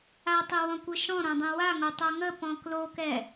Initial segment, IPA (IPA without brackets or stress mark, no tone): a